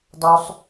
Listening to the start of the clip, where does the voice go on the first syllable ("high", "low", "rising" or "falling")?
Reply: high